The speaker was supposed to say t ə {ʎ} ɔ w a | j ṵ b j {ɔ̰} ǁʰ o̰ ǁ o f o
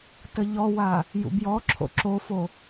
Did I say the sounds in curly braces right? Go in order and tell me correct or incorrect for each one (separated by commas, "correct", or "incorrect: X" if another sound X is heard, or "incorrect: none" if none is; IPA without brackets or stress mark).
correct, incorrect: ɔ